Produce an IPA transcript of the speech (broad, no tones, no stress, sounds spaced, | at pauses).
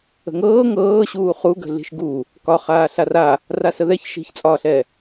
ə̤ ŋ ɤː ŋ ɤː ɕ uː χ u ɡ ə̤ ɮ i̤ ʃ ɡ u | k ɒ χ aː ɬ a r a | r a s ə ð ɛ ç ʃ i̤ ç t͡sʼ ɒː ɬ ɛ